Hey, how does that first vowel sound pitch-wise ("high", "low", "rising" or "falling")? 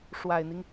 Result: low